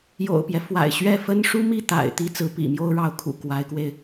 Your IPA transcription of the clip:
jo̰˨˩ʊ̯pjɛ˦ fwa̰˨˩ɪ̯ ɕɥɛ˥˩ fə˥nʂu˥mi˥˩t̪a̰˨˩ɪ̯ t̪i˥t͡sɹ̩˧˥ pḭ˨˩mjo˥ʊ̯ɻɑ˧˥ʊ̯ kʰṵ˨˩ kwa˧˥ɪ̯kwe˧ɪ̯

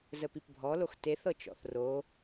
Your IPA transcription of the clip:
zəpipbʱɔlox teθɤ t͡ʃɔ̰θro

